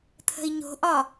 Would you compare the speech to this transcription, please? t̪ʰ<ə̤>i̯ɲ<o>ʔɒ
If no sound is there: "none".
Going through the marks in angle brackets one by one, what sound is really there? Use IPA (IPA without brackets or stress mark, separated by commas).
ə̤, o̤